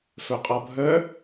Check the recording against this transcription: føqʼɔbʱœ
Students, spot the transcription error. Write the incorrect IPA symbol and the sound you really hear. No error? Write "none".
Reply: ø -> œ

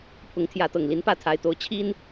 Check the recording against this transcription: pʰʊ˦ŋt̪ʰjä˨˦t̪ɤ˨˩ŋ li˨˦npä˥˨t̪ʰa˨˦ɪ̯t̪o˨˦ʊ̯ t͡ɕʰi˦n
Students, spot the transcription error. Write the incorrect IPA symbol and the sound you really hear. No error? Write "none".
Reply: ʊ˦ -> ʊ˨˦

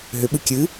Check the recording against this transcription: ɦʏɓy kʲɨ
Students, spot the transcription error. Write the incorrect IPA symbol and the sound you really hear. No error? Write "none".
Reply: y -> ɨ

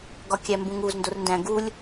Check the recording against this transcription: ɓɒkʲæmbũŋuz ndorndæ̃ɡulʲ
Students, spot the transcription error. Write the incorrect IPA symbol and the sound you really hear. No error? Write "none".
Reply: ɓ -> ɡ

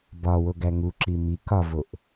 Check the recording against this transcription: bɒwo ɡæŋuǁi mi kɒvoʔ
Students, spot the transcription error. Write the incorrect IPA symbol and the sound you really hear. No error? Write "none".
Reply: none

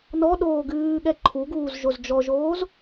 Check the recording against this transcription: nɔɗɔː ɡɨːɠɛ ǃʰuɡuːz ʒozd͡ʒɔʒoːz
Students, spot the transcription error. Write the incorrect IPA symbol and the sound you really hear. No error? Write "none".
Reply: ɔː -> oː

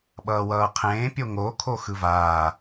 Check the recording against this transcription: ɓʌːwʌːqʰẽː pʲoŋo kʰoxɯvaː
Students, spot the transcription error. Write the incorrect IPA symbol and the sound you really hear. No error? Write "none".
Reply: none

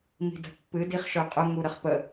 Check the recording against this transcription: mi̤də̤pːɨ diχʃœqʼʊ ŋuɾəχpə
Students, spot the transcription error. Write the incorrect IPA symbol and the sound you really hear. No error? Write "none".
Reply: none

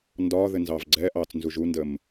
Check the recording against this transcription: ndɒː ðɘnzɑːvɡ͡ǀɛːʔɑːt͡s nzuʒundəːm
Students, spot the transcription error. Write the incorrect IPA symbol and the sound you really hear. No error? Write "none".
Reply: none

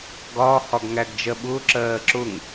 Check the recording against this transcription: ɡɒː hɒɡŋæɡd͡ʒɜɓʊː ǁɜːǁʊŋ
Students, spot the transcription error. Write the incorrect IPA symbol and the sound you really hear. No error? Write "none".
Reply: none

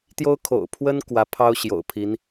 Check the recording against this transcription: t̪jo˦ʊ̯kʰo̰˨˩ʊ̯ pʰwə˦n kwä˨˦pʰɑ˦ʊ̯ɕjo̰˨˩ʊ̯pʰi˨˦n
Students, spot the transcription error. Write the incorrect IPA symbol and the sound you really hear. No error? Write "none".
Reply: none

